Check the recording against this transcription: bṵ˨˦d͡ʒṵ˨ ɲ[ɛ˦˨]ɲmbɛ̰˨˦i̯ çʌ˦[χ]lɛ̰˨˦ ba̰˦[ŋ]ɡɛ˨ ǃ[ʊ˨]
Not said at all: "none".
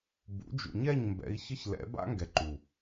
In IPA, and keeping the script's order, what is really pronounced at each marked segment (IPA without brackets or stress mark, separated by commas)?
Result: ɛ˦˨, ç, ŋ, u˨